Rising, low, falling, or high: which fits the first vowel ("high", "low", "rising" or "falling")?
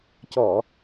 low